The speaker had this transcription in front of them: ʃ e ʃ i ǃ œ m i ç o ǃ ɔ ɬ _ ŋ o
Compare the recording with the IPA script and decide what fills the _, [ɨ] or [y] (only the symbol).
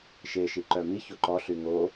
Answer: y